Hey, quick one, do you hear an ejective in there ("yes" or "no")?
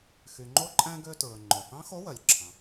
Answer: yes